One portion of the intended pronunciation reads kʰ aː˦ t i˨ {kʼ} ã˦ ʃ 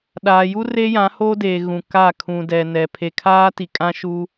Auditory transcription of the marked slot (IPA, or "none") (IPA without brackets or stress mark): kʼ